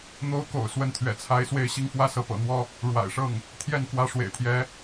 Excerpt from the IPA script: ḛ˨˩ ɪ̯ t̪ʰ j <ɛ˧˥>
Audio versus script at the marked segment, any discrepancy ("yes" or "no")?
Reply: no